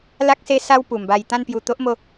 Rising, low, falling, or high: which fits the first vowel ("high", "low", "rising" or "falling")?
high